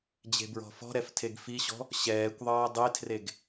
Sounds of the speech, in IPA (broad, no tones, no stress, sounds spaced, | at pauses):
d͡ʑ e̤ b ɹ ɔ̤ f ɔ̤ ɾ ɛ f tʰ e ɡ f i ɕ ɔ̤ | ɕ ɛː kʷ ðˤ ʌː dˤ e tʰ r e ɡ